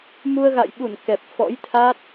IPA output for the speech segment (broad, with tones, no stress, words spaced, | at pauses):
mu˧ə̯ɣa̰˧˨j ɓu˧˩n kɛ˨˩p̚fɔ̰˧˥jt̪ʰa˦˥t̚